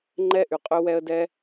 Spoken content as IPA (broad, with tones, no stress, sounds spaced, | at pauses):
ŋ͡ǃ ɛ˥ ʔ y˨ qʼ ø˦ w ɛ˦ ə̯ d ɛ˥